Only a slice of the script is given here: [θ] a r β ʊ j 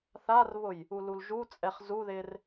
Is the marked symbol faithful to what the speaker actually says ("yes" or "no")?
yes